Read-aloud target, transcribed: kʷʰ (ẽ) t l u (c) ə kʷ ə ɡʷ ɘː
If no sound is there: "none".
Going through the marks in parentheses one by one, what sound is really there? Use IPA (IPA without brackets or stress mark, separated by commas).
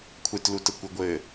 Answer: e, t